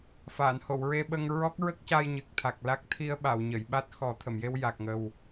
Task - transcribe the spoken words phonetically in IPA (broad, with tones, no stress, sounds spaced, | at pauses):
f a˨˩˨ n h o˨˩˨ w ɹ e˧ ɓ ə˧ ŋ ɹ ɔ˦˥ k̚ ɹ ə˦˥ k̚ c a˧ j ɲ ɨ˨˩ k̚ t̪ʰ a˨˩ k̚ l a˦˥ k̚ t̪ʰ i˧ ə̯ ɓ a˨˩˨ w ɲ ə˨˩˨ j ɓ a˦˥ t̚ x ɔ˨˩˦ t̪ʰ ə˨˩˨ m j e˧ w j a˨˩ k̚ ŋ ə˨˩ w